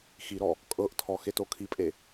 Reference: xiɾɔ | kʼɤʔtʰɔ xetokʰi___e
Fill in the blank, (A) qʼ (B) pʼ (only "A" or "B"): B